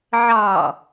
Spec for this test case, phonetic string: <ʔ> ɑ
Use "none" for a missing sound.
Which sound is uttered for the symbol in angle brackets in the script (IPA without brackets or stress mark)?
ʕ